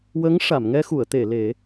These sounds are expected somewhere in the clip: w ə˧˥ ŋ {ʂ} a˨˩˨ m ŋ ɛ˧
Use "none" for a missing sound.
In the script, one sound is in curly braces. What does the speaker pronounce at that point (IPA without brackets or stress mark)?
ʂ